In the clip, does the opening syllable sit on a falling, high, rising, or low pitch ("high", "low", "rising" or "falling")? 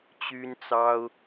high